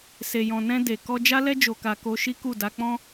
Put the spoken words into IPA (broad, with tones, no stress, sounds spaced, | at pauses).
s e˨ j ɔ̃˨ n ɛ̃˧ d e˨ k ɔ˧ d͡ʒ a˦ l ɛ˦ d͡ʒ o˧ k a˧ k o˧ ʃ i˦ k u˦˨ d a˧ k͡p ɔ̃˦